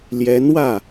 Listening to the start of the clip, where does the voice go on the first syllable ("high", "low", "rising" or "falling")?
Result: rising